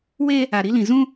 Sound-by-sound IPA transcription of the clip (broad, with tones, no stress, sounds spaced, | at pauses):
w eː˦ | a˨ ɾ i˨˦ l ĩ˨ z ũ˦